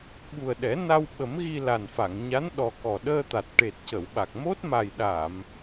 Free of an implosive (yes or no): no